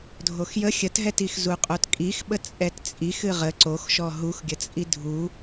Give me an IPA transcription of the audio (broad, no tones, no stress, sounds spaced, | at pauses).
dʱ o x j ə xʲ ə t ɦ ɛ t i x z u qʼ o t kʼ i x ɓ ə t͡sʼ ɛ t t͡sʼ i x ɨ ʁ ə ǀ o x ʃ ɔ ɦ u x ɡʲ ə t͡sʼ i dʱ u